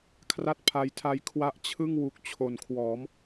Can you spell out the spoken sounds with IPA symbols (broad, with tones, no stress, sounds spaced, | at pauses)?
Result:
kʰ r a˦˥ t̚ pʰ a˧ j tʰ a˦˥ j kʰ w a˦˥ ʔ t͡ɕʰ ɯ˥˩ ŋ w u˨˩ k̚ t͡ɕʰ o˨˩ n kʰ w ɔː˩˦ m